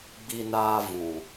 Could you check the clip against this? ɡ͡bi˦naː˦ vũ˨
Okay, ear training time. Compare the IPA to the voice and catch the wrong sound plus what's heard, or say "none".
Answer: none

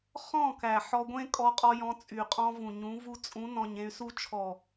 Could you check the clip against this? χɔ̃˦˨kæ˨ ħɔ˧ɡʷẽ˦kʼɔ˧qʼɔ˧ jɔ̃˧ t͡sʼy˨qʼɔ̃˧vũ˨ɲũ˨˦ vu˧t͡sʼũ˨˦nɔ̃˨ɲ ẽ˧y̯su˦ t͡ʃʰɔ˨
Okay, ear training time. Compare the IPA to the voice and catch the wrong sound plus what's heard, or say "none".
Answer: none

